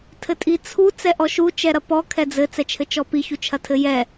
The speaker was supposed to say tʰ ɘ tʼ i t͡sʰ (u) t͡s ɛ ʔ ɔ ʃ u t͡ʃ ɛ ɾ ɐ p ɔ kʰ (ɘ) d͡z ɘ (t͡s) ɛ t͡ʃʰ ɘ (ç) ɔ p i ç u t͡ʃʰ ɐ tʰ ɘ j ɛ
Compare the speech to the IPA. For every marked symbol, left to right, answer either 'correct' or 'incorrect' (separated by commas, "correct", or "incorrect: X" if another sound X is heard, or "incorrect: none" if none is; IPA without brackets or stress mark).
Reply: correct, incorrect: ɛ, correct, incorrect: t͡ʃ